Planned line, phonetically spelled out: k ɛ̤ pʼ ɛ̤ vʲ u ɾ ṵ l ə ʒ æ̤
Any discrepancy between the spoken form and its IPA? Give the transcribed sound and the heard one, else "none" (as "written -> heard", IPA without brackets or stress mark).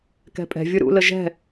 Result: æ̤ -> ɛ̤